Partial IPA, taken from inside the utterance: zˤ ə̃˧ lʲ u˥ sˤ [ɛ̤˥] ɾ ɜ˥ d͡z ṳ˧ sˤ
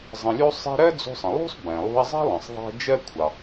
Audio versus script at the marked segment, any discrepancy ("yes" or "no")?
no